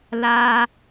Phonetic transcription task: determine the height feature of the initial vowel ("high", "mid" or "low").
low